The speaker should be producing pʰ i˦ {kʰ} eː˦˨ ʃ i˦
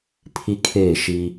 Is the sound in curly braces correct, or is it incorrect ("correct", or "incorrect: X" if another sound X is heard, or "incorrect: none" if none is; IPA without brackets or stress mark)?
correct